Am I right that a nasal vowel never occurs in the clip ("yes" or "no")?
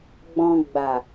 no